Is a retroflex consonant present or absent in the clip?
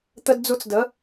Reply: absent